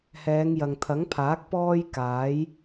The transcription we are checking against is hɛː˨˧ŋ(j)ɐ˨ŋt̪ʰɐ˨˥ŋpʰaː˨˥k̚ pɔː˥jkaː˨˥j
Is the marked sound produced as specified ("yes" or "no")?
yes